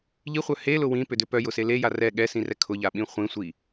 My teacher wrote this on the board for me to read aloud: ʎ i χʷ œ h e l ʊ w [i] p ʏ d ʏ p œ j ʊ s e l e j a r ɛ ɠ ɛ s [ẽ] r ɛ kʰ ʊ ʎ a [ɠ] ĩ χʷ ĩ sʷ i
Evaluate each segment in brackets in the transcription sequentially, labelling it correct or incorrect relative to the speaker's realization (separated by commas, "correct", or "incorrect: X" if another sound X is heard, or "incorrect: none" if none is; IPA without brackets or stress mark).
incorrect: ĩ, incorrect: ĩ, incorrect: ɓ